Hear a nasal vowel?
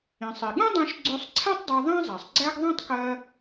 yes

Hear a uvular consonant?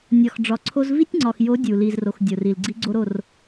no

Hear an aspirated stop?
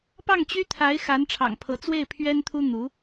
yes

